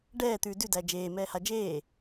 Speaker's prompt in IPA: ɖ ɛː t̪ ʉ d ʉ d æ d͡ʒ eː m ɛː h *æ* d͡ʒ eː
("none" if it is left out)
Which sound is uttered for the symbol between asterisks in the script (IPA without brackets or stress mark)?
a